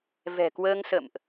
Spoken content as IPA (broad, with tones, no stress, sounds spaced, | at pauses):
v ɛ̤˨˩ k w əː˧ ŋ s ə̰˧˨ m ʔ